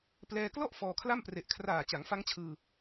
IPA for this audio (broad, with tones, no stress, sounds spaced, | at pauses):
p l ɛː˧ k l ɔ˥˩ ʔ f ɔː˧ kʰ l a˥˩ m p r e˨˩ ʔ kʰ r aː˨˩ t͡ɕ a˩˦ ŋ f a˦˥ ŋ t͡ɕʰ ɯː˧